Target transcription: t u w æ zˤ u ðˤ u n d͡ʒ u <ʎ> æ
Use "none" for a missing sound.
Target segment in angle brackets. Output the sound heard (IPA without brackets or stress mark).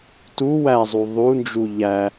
ʎ